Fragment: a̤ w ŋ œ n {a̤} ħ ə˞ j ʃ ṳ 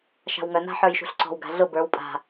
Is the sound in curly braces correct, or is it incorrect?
correct